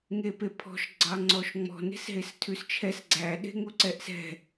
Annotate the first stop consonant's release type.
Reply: plain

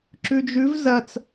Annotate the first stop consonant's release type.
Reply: click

